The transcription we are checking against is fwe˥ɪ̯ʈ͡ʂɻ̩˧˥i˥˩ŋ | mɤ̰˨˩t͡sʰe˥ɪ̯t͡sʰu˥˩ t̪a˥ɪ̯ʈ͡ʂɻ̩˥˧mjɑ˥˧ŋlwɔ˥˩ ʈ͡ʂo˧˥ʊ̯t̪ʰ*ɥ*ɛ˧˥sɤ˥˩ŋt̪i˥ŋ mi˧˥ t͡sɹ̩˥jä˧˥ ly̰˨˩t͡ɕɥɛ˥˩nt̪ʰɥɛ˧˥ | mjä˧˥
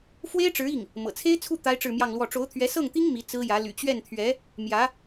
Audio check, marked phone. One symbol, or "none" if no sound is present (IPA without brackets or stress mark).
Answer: ɥ